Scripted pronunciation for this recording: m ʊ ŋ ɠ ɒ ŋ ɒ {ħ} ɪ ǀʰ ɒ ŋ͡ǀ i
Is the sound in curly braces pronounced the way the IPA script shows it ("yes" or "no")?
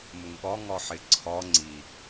yes